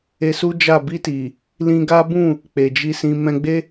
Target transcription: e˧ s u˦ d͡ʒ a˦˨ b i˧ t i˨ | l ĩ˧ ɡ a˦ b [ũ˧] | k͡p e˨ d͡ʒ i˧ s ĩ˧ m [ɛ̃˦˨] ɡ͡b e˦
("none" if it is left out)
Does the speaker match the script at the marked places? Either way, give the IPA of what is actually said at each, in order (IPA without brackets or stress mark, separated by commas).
ũ˦˨, ɛ̃˧